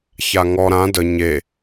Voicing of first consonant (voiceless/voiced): voiceless